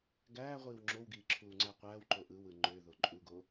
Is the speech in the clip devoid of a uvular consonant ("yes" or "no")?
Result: no